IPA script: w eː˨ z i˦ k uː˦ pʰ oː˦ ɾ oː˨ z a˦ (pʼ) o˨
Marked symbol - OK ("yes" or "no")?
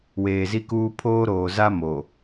no